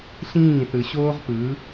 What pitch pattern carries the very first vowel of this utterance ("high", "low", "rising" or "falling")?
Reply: falling